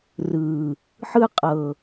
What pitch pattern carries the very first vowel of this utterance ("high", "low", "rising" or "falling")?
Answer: low